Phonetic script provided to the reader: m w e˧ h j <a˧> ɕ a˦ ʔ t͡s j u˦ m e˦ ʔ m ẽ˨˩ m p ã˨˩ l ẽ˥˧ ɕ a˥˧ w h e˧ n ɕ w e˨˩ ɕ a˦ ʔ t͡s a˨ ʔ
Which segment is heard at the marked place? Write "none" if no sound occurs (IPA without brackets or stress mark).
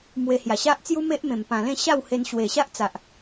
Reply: a˨˩